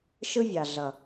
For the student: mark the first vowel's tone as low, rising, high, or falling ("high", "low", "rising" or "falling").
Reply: high